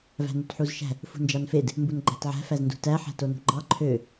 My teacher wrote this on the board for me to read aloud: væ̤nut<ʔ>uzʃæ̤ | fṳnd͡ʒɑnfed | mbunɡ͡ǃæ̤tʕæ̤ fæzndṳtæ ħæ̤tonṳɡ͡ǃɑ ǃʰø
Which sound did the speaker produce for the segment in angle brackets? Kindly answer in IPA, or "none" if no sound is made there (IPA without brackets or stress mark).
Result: ħ